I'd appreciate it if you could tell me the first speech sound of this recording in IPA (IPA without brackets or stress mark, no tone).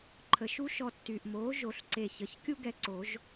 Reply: ǃʰ